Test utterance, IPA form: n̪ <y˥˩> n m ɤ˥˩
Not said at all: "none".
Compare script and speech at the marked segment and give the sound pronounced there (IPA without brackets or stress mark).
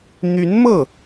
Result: y˧˥